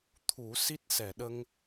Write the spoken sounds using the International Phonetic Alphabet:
t̪ʰ u˨˩˦ s i˦˥ t̚ s ɛ˨˩˨ ɗ ə˧ ŋ

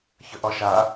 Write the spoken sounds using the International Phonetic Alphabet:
ç ə ʔ ɒ ʃ a

